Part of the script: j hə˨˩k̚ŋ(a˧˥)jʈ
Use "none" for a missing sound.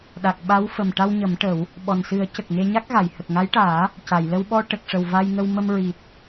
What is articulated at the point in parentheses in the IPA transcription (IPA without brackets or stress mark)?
a˧˥